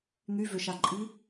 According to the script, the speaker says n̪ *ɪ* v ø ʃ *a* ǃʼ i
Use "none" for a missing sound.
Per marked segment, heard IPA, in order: y, a

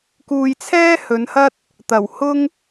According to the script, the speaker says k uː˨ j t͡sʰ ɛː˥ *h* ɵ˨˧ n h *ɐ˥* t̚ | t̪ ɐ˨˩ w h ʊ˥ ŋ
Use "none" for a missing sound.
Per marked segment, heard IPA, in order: h, ɐ˥

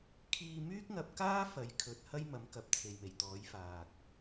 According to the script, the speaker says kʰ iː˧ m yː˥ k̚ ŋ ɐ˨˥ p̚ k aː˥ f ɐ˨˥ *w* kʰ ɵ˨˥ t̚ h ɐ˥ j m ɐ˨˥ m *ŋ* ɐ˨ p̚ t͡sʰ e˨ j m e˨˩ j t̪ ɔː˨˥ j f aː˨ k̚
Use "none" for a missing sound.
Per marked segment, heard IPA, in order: j, k

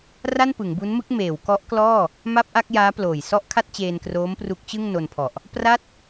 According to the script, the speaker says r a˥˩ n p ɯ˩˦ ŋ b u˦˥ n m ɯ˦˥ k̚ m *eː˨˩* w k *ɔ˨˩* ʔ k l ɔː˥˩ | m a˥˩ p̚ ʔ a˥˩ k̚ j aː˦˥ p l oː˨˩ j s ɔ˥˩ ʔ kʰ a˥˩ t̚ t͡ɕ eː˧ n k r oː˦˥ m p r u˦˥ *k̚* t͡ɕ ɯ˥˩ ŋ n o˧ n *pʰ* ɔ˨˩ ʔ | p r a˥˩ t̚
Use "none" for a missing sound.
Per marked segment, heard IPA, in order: eː˩˦, ɔ˦˥, k̚, pʰ

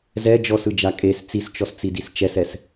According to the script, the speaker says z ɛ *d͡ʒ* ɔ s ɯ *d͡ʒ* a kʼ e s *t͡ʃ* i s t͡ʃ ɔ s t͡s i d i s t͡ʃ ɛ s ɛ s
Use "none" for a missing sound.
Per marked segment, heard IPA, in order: d͡ʒ, d͡ʒ, t͡s

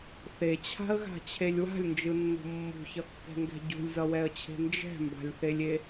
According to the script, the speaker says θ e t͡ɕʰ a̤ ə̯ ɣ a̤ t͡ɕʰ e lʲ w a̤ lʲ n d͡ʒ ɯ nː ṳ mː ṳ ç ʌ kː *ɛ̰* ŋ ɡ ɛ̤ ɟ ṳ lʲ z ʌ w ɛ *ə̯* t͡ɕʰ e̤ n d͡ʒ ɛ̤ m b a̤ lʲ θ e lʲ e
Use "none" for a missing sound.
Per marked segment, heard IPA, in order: ɛ̤, ə̯

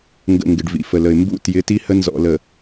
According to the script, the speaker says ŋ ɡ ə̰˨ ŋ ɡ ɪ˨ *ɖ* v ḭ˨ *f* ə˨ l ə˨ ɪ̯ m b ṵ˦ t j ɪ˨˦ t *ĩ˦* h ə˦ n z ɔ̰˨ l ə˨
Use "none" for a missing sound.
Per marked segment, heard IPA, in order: ɖ, f, i˦

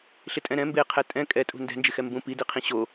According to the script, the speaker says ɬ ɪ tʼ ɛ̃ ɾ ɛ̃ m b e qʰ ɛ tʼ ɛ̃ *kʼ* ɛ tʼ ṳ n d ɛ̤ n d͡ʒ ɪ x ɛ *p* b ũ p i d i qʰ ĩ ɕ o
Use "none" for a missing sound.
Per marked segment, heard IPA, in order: kʼ, m

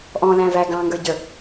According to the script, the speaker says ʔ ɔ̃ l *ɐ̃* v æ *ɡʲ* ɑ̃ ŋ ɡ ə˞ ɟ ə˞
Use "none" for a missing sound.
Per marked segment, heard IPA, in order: æ̃, ɡ

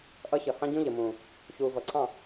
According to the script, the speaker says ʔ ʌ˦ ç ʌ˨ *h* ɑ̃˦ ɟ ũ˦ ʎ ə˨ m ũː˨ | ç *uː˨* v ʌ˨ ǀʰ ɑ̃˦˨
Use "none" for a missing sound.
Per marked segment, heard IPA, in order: h, uː˨

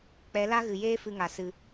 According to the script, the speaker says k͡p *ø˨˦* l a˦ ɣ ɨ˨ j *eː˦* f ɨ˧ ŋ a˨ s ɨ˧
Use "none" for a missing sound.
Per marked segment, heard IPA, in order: ɛ˨˦, eː˦

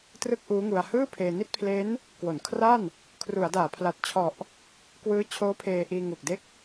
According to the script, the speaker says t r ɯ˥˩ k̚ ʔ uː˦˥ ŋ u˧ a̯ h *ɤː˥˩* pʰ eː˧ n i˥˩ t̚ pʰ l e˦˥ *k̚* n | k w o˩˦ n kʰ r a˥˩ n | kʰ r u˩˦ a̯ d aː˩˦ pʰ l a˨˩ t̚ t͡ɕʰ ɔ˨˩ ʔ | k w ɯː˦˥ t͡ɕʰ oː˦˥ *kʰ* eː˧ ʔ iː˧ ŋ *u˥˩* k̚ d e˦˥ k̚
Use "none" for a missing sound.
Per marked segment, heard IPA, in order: ɯː˥˩, none, pʰ, u˨˩

